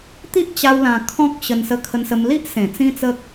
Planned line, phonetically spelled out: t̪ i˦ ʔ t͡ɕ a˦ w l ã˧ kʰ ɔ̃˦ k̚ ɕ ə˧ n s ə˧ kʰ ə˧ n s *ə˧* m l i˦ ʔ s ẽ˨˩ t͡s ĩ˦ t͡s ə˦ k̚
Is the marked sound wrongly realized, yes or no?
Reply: no